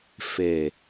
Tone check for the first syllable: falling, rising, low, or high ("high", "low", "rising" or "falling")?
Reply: low